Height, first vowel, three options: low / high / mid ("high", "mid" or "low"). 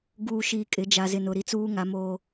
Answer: high